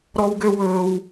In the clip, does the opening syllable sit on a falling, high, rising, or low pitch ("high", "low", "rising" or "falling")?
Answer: high